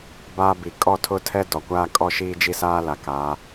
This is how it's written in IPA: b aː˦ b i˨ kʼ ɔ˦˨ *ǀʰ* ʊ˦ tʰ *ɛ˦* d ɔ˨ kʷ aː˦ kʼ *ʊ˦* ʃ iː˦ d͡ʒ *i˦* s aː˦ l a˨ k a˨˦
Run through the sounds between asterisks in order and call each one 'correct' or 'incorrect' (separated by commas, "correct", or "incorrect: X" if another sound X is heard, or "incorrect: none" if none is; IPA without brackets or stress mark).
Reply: incorrect: tʰ, correct, incorrect: ɔ˦, correct